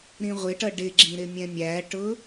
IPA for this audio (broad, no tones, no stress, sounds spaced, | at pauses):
ɾ ĩ ʁʷ ɪ ʈ ʌ ɖ ɪ ɡ͡ǁ ĩ ɾ ɪ mʲ ɛ̃ mʲ æ ʈ ʊ